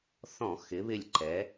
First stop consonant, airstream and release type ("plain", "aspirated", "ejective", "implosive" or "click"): click